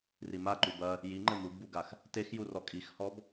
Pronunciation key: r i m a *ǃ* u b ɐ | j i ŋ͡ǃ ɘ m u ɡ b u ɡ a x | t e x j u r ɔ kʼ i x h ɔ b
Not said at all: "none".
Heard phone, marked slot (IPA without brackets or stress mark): ǃ